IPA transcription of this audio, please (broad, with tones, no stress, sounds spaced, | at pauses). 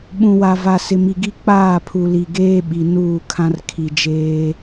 ɓ ũ˨ w a˨ v a˨ s ɪ˨ m i˨ ɡ i˦ k͡p aː˦˨ pʰ u˨ l i˨ ɡ eː˦ ɓ i˨ n uː˦˨ kʰ ã˦ r kʰ i˨ d͡ʒ eː˦